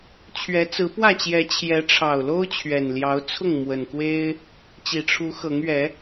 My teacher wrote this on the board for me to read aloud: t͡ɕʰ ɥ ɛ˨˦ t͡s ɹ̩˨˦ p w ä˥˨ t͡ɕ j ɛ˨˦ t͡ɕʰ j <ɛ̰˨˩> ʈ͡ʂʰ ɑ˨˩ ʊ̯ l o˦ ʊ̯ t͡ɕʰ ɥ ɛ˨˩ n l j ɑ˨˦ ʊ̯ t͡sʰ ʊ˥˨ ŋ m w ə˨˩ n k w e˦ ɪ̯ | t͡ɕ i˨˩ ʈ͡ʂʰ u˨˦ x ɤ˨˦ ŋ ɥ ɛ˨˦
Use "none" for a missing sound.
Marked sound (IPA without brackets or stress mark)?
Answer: ɛ˨˦